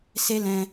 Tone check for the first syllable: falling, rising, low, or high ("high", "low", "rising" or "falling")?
high